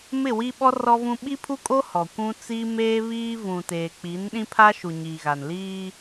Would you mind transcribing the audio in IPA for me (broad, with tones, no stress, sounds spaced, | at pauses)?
m ɪ˦˨ w i˦ ɓ ɔ˦ r ɔ˦ v ũ˦ ɓ i˦ pʰ u˦ kʼ o˦ h ɔ˨ kʷ ũ˦ t͡s iː˦ m eː˦ β iː˦ v ũ˨ t eː˨ k͡p i˨˦ n ɗ ĩ˦ pʰ a˦ ʃ u˨ ɲ iː˨ ɣ a˨ n l iː˦